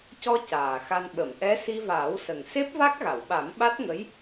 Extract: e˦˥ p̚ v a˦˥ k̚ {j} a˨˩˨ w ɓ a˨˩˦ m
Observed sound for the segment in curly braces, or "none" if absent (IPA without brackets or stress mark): ɣ